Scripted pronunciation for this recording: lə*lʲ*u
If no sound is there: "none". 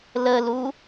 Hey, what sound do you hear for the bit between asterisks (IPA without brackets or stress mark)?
l